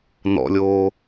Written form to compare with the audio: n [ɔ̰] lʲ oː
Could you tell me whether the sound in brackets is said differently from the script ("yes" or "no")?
no